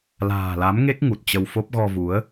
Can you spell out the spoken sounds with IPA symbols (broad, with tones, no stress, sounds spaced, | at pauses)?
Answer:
l a̤ː˨˩ l a˨˦ m ŋ e˦˥ k̚ ŋ u˨˩ t̚ t͡ɕ ə˧ w f o˦˥ p̚ ɣ ɔ˧ v u˨˦ ə̯